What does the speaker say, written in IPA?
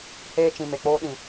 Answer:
h eː˧ t͡ʃ ĩ˨ m e˨ k͡p oː˧ ɗ ĩ˨

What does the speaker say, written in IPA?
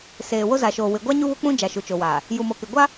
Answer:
s eː˨ w o˦ z a˨ ʃ oː˨ w ɪ˨ ɡʷ a˦ ɲ u˦ β ʊ˦ k͡p ũ˦ d͡ʒ a˨ ʃ u˨ t͡ʃ o˨ w aː˨ | j u˨ m o˨ k ɪ˨ ɡʷ a˦

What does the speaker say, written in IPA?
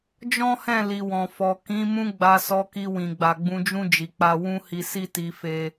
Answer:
d͡ʒ ɔ̃˦ h ɛ̃˦˨ l i˨ w ɔ̃˨ f ɔ˨ k ĩ˨˦ m ũ˦ ɡ͡b a˧ s ɔ˧ k i˧ w ĩ˨ ɡ͡b a˨ ɡ͡b ũ˧ d͡ʒ ũ˦ d͡ʒ i˧ k͡p a˦ w ũ˦ h i˧ s i˦ t i˧ f e˦

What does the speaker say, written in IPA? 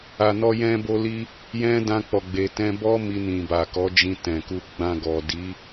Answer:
a˨ n ɔ˧ j ɛ̃˧ b o˧ l i˧ | j ɛ̃˧ d ã˧ k͡p ɔ˨ ɡ͡b e˨ t ɛ̃˧ b ɔ˦ m i˧ n ĩ˨ b a˨ k ɔ˨˦ d͡ʒ ĩ˧ t ɛ̃˨ k u˧ ɡ͡b ã˧ ɡ ɔ˨ d i˨˦

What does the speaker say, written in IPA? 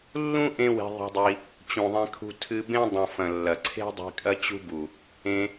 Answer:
lː ũ˦ ʔ ẽ˦ w e̤˧ ðˤ i̤˧ dˤ i˧ | t͡ɕ ũ˨ ðˤ ẽ˧ kʰ ṳ˧ tʰ ɨ˧ b ẽ˦ dˤ ũ˨ f ɐ̃˨ lː ɐ˨ ǀʰ e̤˦ dˤ i̤˧ kʼ ɐ˦ t͡ɕ ṳ˦ b u˨ | ẽ˧

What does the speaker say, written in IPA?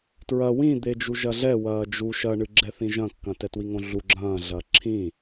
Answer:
t ɹ ɐ w ĩ d̪ e d͡ʒ u ʒ ɐ ɮ ɛ w ɐː d͡ʒ u ʃ ɐ ɳ ɨ ɡ͡ǁ ɛ θ ĩ ʒ ɐ̃ kː ɐ̃ t ɛ t w i ŋ õ ɮ u ɡ͡ǁ ɐ̃ː ɮ ɐ ǁʰ ĩ

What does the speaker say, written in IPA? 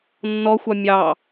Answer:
nː ɔ xʷ ɑ mʲ ɑ

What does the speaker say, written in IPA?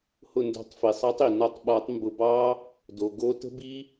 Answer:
h ʊ˧˩ n d o̤˨˩˦ tˤ f i˩ sˤ ɑ˨˥ tˤ i˩ n ɒ˧˩ tˤ ɓ ɒ˨˩˦ tˤ m b ʊ˧˩ b ɑ˦˥ | d o˩ ɡ o˨˥ t ə̤˦˥ b i˦˥

